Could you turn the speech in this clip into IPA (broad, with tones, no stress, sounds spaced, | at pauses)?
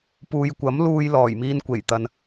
p uː˨ j kʷ ɐ˨˥ m l uː˧ j l ɔː˨˩ j m iː˧ n kʷ e˨˩ j t̪ ɐ˨ n